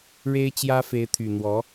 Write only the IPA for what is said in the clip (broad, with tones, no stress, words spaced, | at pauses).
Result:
ɻe˥ɪ̯t͡ɕjä˥fe˧˥ɪ̯t̪ʰy˨˩ n̪wɔ˧˥